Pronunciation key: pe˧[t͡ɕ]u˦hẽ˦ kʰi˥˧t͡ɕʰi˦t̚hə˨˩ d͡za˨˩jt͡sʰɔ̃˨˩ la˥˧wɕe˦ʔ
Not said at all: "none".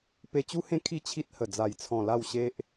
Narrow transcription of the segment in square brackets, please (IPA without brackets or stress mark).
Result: t͡ɕ